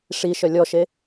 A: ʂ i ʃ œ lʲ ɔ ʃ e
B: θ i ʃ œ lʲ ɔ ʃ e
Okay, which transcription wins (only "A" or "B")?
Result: A